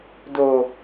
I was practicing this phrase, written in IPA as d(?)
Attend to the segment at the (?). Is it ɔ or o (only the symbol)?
o